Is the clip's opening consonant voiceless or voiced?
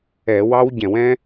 voiced